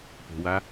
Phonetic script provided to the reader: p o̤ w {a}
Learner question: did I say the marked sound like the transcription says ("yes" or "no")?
yes